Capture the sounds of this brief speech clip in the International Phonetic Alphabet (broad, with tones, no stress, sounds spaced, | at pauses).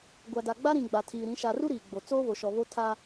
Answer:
ɡʷ a˨ d a˨ ɡ͡b a˦ ɾ ĩ˨ ɡ͡b a˨ tʰ iː˨ ɾ ĩ˨˦ ʃ a˨ r u˦ ɾ iː˨ ɡ͡b o˨ t͡s oː˦ β o˨ ʃ ɔ˨ β o˦ tʰ a˦